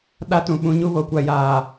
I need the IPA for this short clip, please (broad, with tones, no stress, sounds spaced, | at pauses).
ɗ a˦ t ũ˨ ɓ ũ˨˦ ɲ u˦ β o˨ kʷ a˨ j aː˨